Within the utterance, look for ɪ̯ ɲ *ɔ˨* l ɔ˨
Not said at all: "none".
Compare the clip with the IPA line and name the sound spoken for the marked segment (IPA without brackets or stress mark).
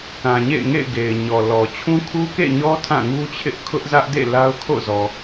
ɔ˨